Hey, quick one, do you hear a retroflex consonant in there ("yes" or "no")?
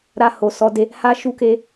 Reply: no